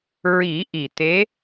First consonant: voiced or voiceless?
voiced